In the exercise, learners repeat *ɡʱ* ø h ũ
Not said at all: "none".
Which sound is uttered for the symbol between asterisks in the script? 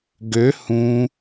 ɡ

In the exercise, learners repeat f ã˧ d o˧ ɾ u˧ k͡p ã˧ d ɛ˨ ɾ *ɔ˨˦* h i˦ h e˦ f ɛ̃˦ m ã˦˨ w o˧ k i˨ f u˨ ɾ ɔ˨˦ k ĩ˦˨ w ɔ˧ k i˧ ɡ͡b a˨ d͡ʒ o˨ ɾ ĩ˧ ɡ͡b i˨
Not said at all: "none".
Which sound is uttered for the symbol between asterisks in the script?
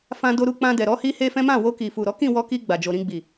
ɔ˨˦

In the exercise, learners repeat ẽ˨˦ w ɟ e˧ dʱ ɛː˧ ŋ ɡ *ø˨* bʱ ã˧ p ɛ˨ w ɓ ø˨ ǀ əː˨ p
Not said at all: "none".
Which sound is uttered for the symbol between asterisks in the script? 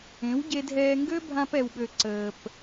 ø˦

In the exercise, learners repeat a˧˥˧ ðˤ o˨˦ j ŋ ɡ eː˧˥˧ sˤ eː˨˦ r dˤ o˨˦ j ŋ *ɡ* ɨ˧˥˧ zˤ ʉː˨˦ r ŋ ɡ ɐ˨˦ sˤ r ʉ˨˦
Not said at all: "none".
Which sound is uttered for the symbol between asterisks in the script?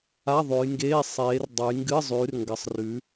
ɡ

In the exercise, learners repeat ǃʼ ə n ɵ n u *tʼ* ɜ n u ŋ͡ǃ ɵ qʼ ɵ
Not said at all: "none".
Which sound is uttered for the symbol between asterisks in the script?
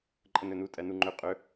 tʼ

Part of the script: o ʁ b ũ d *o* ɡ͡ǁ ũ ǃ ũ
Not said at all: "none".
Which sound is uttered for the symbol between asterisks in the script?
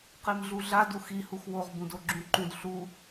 o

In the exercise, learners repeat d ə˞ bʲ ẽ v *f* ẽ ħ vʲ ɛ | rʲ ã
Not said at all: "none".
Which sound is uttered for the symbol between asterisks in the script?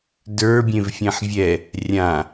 fʲ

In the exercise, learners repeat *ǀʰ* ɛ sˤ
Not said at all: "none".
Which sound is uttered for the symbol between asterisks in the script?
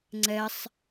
ŋ͡ǀ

